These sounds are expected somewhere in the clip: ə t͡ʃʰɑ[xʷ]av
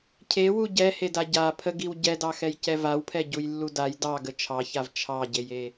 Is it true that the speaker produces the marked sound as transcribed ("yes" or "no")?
no